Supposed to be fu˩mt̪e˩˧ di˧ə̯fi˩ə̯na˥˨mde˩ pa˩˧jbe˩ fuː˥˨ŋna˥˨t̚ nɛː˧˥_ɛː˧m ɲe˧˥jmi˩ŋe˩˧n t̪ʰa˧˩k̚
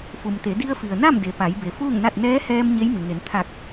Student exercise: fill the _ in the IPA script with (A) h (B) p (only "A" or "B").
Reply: A